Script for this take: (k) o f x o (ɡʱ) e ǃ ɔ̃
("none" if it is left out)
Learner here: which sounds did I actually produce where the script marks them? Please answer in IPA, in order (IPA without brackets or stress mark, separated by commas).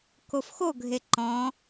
k, ɡʱ